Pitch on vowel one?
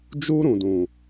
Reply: high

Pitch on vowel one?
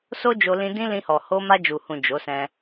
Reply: high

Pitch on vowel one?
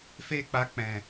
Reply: high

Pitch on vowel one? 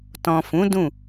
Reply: low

